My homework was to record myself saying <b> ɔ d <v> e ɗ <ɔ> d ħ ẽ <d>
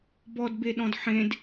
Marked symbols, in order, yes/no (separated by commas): yes, no, no, yes